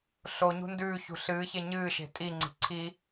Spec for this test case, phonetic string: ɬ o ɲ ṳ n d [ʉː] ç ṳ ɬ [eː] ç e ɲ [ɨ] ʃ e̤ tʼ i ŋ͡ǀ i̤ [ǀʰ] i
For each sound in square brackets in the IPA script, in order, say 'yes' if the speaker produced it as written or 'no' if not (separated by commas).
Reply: yes, no, no, yes